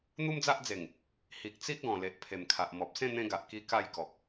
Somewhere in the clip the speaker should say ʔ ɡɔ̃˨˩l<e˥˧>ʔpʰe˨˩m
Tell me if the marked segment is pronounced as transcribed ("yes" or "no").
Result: no